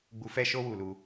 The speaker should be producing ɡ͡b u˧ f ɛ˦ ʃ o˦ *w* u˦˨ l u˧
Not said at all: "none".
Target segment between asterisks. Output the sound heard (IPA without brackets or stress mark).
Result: w